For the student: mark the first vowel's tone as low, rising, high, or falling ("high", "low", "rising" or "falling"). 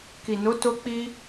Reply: low